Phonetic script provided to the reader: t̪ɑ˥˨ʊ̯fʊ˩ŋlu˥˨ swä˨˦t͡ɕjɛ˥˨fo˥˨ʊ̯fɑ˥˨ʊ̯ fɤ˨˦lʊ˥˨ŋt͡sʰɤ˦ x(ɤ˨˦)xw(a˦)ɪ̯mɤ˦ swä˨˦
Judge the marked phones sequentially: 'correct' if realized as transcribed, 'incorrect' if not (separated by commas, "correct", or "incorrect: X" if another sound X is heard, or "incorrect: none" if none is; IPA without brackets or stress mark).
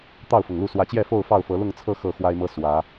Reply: incorrect: ɤ˥˨, correct